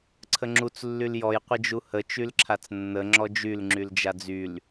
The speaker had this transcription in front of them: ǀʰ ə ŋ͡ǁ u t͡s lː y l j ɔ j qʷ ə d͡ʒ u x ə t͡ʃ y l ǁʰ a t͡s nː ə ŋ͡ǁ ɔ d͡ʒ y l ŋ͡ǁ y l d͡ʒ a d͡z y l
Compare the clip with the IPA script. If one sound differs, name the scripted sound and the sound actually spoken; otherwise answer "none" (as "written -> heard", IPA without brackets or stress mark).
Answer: x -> h